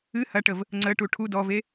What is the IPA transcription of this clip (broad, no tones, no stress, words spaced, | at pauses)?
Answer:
ɨ hɐʈəv | ŋ͡ǀəʈu ʈʰu dɔve